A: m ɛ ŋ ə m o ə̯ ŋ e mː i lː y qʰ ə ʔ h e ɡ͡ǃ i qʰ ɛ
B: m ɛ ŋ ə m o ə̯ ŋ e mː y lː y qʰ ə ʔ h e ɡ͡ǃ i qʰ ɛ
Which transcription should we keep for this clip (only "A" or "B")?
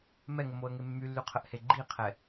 B